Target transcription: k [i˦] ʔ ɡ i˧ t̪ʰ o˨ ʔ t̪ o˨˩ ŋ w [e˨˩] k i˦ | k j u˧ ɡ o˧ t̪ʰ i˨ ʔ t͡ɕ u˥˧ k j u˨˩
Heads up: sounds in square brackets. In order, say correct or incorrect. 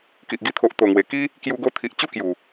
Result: incorrect: i˨, correct

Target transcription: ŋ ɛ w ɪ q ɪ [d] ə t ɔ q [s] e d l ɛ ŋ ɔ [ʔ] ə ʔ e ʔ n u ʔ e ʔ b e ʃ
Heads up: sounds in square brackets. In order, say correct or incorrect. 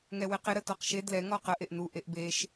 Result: incorrect: ɾ, incorrect: ʃ, incorrect: q

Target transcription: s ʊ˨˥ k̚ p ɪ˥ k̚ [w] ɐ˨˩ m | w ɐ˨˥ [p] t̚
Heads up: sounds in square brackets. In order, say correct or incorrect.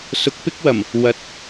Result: correct, incorrect: none

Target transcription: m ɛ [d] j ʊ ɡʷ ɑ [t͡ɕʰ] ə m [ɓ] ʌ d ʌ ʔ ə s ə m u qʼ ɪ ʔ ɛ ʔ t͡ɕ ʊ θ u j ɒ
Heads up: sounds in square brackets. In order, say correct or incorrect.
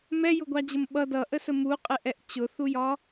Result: incorrect: none, incorrect: d͡ʑ, correct

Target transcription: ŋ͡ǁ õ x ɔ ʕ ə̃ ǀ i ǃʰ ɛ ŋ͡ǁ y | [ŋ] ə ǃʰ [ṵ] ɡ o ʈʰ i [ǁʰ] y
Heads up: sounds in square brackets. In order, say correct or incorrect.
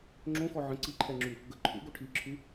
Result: incorrect: ɡ, correct, correct

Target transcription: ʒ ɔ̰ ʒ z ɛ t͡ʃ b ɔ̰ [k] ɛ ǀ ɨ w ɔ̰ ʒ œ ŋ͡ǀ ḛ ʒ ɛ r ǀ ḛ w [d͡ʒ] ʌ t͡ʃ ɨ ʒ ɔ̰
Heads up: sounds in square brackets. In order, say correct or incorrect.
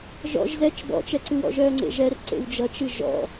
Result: incorrect: t͡ʃ, correct

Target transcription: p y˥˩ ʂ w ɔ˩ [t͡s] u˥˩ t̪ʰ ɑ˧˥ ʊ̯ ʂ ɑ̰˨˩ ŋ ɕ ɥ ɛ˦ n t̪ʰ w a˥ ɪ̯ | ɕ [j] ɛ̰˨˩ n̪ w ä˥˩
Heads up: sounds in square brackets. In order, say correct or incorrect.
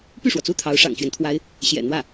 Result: correct, correct

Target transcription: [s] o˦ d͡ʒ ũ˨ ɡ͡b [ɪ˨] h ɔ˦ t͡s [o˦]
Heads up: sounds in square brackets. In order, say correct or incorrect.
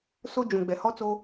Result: correct, incorrect: ɛ˨, correct

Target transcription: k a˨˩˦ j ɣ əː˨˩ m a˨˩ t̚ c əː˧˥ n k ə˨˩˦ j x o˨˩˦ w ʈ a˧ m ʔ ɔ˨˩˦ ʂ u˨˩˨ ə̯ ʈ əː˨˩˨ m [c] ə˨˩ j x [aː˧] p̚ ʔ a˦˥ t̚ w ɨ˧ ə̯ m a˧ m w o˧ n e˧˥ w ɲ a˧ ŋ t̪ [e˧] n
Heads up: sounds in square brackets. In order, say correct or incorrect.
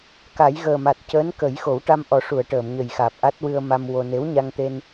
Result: incorrect: ɲ, incorrect: aː˨˩, correct

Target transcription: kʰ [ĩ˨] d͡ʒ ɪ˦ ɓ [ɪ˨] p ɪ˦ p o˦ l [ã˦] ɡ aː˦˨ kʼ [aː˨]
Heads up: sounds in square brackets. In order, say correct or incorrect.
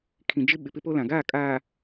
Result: correct, correct, incorrect: ã˨, correct

